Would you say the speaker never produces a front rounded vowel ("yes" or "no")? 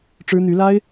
no